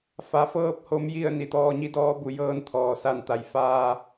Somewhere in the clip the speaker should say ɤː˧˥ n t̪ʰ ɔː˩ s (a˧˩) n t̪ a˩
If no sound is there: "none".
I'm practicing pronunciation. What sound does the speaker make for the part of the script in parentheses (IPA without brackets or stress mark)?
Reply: a˧˩